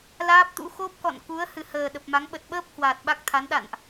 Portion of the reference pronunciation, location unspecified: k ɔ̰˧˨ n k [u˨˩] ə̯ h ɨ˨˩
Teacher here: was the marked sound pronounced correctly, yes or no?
no